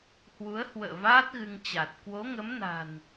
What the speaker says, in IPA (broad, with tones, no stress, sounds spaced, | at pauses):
h w u˨˦ ə̯ h w ə̰ː˧˨ v aː˦˥ t̚ ɣ ɨ˧ ŋ t͡ɕ a˨˩ t̚ k w o˨˦ ŋ ə˨˦ m n a̤˨˩ n